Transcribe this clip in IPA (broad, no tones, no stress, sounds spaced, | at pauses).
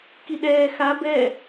k i ɗ ɛː x a b ɛ